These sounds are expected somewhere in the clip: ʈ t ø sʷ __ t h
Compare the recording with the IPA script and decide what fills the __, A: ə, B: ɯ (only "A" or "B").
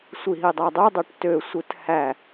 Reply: B